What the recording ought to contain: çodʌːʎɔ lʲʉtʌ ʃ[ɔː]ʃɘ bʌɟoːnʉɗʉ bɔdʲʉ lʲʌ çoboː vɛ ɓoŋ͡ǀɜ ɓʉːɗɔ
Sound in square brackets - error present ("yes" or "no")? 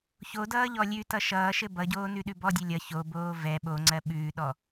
yes